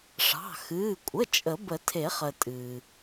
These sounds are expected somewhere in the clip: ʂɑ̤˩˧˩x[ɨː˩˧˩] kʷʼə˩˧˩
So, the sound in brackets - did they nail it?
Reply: yes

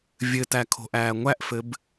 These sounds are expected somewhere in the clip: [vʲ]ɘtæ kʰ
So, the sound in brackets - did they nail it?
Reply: yes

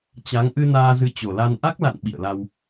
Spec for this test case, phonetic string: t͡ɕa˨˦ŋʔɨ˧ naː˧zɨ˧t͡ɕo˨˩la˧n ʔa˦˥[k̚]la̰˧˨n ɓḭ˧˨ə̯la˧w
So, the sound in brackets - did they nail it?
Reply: yes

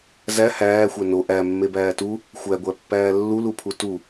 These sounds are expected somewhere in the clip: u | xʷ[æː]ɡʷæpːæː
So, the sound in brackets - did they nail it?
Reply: no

